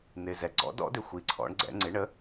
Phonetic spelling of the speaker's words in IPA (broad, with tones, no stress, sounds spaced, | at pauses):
n̪ ɪ˨˩ z ɛ˨˩ ɡ͡ǀ ɔ̰˩˥ d ɔ̰˩˥ d ɪ˨˩ xʷ i˨˩ ǀʰ ɔ̰˩˥ ɳ ɡ͡ǀ ɛ̰˩˥ ŋ͡ǀ ɪ˩˥ ɳ ə˩˥